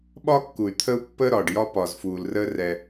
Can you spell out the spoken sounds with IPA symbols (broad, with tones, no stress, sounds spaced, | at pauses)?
ɓ ɒː˦ kː u˨ y̯ t̪ʰ ə˦ u̯ pː əː˦ ɾ ɒː˨ ɖ j ɒ˦ p ɒː˨ z f uː˨ l r əː˦ r ɛ˦